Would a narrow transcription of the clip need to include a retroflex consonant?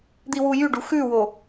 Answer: yes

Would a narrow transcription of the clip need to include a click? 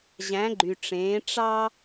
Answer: yes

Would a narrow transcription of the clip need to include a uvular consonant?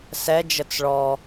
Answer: no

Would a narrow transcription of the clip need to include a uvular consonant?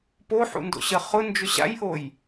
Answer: yes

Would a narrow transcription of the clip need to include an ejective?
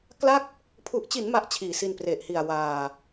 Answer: no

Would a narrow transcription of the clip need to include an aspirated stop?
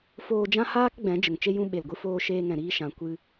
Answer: no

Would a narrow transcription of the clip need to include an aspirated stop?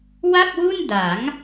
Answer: no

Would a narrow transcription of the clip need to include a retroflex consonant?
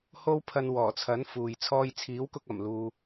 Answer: no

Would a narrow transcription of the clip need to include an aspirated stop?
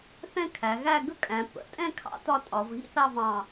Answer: yes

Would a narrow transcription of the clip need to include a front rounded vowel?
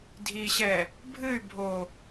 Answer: yes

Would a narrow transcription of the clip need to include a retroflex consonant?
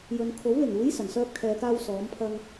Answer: no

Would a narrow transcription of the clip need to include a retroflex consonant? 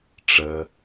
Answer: yes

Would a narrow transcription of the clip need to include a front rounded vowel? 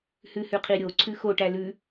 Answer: no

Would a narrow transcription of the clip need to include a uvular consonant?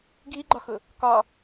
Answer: no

